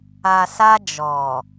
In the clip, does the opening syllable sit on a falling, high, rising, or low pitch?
low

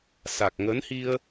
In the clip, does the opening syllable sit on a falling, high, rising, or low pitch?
low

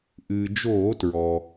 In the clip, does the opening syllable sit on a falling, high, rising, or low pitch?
low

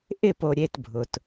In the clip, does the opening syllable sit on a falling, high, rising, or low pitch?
falling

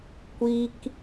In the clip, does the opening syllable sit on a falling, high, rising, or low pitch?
high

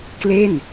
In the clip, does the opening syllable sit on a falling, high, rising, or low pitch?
falling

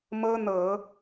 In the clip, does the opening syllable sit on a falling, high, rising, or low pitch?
high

